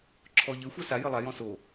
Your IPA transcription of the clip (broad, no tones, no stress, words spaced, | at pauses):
ǁʰɔʎɘ xʷasa jɘlˠa jɔ̃so